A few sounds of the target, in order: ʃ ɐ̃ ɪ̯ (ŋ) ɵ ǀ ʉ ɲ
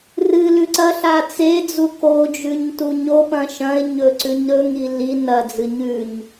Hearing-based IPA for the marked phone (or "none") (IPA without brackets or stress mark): ɲ